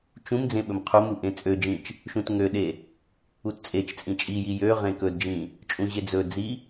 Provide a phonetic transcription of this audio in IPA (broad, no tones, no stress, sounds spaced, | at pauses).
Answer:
t͡ʃ ũ m d͡z ẽ ɓ ɵ m qʰ u m u ʔ ẽ t͡sʼ ø d͡ʒ ĩ t͡ʃ | ʃ ũ t ŋ ø ɗ e | u t t͡sʼ e t͡ʃ t͡sʼ ĩ t͡ʃʼ i j i j ø ʁ ẽ k ɵ d d͡ʒ ĩ | t͡ʃʼ ũ ʑ e d͡z ɵ d͡z i